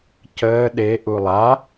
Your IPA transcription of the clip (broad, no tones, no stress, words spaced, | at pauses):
cəː ɗe ʔulˠa